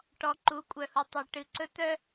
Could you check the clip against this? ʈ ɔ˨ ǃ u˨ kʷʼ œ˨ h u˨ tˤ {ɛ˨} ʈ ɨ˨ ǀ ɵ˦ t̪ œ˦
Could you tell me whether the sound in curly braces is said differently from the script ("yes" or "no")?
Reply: no